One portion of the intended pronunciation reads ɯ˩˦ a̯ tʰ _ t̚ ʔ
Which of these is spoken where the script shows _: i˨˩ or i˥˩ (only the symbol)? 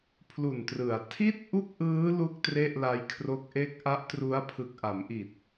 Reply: i˥˩